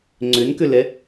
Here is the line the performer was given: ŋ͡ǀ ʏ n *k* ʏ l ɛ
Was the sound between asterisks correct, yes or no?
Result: yes